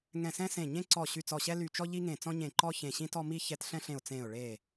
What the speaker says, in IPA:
ŋɛ̃˧˩sɛ̃˦sẽ˧˩ ɲẽ˦ǀɔ˧˩ ɕy˧˩t͡sɔ˧˩ɕɛ˦ ly˧˩t͡ʃɔ˦ ʎi˦ŋẽ˧˩ t͡sɔ̃˦ɲẽ˧˩ ǃɔ˦ çẽ˧˩ɕĩ˦tɔ˦ mi˦ çɛ˦t ɬɛ̃˦ɬẽ˧˩ʊ̯ t͡sẽ˧˩ʊ̯ɭe˧˩

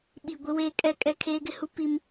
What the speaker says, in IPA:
ɓi˨ ɡʷɪ˦weː˦ kʼɛ˦kʼɛ˦ kʰeː˦ɡɪ˦hu˦ pi˦m

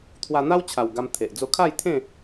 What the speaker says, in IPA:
t̪ʰwa˧n̪a˦wt͡ɕʰa˨˩w ɡa˧mt̪ʰe˨ʔ d͡zo˧kʰa˥˧jt̪ʰẽ˥˧

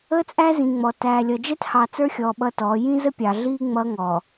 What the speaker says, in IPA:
əː˦t͡sʼæ˦zĩ˨ŋ͡mɔ˨ tæː˨lʲʌ˨ d͡ʒɛ˦thɑ˨ t͡sə˞˦xʲɔː˨ ɓʌ˦tɔː˨˦ jĩ˦zə˦pʲɑ˨ɮiː˦ ŋ͡mʌː˦ŋɔː˨

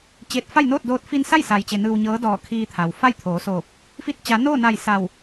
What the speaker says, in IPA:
t͡ɕeː˧˩t̚fa˥˨jnoː˥˨t̚doː˧t̚ fi˧nsa˥˨jsa˩jt͡ɕe˩ nɯː˧wɲɤː˧˥ dɔː˧˩ kʰiː˧t̪ʰa˩w fa˥˨jt̪ʰoː˩˧soː˧˩p̚ | fi˥˨t̚ t͡ɕa˩˧noː˥˨na˧˩j sa˧˩w

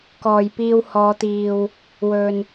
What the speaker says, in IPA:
kɔː˨jpiː˧whɔː˨˧t̪iː˨w | wɵ˨n

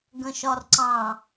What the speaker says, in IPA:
ɡə̃ʃɒrǀɑ̃

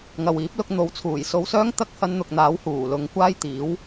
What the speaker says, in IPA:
ŋɐ˨wiː˨˥p̚lʊ˧k̚ n̪o˨˧wt͡sʰuː˨˩jso˧wsœː˥ŋ t̪ɐ˥k̚hɐ˧nn̪ʊ˨k̚n̪aː˨˥w huː˨˩lʊ˨˧ŋ kʷaː˥jt̪iː˨˥w

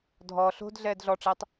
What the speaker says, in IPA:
dʱɔ ɬo̤d ɮɛːdɮɔʈ͡ʂetˤ

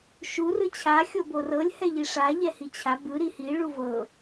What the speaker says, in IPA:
ʃu rɯt͡ɕʰa xʲoborɤlʲ hɛʎiʂa ʎɛhit͡ɕʰa bɯ ɾihi ɭuvɤ

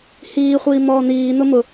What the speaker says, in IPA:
hiːχʷiː mɔːn̪iːn̪ʊ mʊ

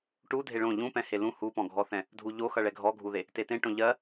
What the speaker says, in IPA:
ʈu dʱeɭõ ʎũpɛ̃ helũ hupɔ̃ɡʱɔθɛ̃ | dʱuʎoxʌ ɭɛɡʱɔɡʱuðe | tetẽʈõ ʎɜ

